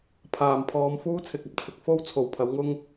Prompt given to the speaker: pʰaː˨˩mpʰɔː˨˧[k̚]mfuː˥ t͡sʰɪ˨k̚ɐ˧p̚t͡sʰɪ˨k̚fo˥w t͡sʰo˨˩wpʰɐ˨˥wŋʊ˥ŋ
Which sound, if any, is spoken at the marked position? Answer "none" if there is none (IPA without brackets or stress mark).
none